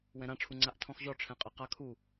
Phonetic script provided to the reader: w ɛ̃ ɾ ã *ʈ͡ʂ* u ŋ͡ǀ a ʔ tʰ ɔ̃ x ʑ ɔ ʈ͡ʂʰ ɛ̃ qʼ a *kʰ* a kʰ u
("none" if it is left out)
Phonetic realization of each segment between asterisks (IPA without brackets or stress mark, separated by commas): ʈ͡ʂʰ, q